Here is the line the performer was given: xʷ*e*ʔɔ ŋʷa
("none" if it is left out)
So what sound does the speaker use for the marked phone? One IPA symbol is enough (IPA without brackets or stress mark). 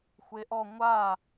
e